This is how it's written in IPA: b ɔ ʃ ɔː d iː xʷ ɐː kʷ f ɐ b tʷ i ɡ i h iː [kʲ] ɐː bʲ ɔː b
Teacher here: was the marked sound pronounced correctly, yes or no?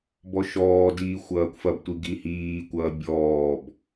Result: no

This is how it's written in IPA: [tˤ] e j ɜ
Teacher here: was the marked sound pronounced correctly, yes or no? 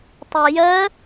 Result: yes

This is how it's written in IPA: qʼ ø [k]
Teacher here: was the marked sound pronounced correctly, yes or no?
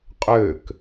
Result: yes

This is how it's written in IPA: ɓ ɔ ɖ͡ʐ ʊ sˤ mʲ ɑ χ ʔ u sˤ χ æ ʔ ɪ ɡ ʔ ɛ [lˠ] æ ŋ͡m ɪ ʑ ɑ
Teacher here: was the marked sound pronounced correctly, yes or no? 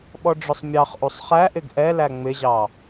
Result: no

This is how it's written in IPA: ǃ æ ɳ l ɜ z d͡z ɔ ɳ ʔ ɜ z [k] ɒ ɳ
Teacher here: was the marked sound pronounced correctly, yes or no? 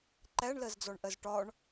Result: no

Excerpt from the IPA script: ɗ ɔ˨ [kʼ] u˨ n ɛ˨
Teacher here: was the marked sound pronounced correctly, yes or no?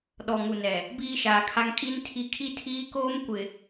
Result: no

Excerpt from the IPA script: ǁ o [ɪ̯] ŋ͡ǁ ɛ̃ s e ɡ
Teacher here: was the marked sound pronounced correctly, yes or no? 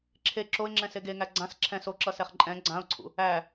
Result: yes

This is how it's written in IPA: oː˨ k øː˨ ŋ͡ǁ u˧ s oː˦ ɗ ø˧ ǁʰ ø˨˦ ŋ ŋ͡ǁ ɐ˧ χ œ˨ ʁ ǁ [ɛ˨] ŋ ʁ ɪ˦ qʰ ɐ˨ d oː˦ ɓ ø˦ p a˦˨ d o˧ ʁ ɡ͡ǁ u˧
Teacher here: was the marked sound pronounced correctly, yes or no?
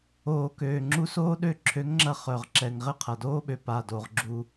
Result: yes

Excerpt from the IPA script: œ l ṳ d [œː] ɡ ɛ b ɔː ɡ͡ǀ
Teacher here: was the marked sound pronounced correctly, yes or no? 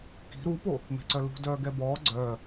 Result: yes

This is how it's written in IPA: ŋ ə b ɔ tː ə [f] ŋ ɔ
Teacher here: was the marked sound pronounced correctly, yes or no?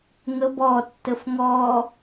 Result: yes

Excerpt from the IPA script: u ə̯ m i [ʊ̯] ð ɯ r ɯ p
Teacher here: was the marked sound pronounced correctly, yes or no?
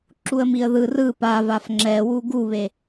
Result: no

